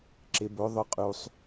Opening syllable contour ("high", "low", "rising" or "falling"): low